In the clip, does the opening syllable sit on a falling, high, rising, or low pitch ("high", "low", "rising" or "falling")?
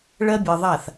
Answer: high